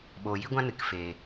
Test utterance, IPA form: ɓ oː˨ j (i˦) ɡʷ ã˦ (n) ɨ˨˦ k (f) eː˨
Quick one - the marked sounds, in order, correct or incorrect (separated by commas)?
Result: correct, correct, correct